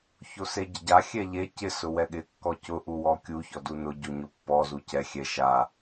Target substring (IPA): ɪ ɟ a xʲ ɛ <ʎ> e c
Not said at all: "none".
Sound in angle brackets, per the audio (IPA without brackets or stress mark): ʎ